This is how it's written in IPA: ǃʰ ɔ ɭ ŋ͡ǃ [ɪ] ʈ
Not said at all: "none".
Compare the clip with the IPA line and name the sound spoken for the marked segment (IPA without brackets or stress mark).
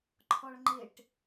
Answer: ɪ